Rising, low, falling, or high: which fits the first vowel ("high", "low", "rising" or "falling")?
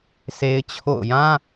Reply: high